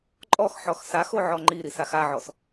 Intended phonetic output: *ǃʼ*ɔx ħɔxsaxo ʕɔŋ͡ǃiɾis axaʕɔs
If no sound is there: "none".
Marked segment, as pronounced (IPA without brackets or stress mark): ǃʼ